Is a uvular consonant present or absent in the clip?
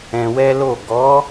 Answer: absent